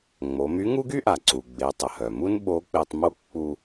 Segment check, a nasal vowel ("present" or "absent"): absent